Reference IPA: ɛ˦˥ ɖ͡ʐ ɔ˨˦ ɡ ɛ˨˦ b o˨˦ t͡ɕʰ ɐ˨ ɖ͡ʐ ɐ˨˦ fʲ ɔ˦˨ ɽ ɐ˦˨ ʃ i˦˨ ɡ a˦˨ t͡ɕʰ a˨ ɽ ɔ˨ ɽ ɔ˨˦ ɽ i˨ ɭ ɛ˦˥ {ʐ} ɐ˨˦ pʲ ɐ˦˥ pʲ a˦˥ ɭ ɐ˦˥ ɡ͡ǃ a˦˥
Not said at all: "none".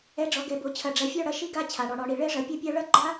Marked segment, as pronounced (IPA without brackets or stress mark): ʐ